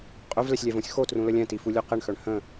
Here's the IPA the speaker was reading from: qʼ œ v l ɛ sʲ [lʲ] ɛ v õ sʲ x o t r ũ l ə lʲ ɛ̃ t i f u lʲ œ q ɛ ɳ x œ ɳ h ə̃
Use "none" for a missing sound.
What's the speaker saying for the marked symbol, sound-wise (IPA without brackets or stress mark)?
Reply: lʲ